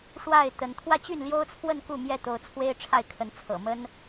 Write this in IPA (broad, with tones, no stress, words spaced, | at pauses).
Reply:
ʂwa˥˨ɪ̯ t̪ə˨˦n t̪ʰwä˥˨t͡ɕy˥˨nljo˦ʊ̯t͡sʰwə˥˨n ku˥˨mjɛ˥˨t̪o˨˦ʊ̯t͡sʰwe˦ɪ̯ ʈ͡ʂʰa˥˨ɪ̯kʰə˨˦n t͡sʰɤ̰˨˩mə˦n